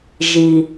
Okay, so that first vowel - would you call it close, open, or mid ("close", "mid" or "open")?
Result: close